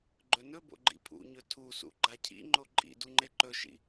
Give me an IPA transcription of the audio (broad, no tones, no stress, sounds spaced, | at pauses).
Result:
ɡ͡ǃ ɵ n ɵ b o̰ ɡ͡ǃ ḭ pʰ ṵ ɲ ɵ tʰ u s ṵ ɡ͡ǃ a cʰ ḭ ŋ͡ǃ o ǃʼ ḭ d u ŋ͡ǃ e ǃ ɵ ʃ ḭ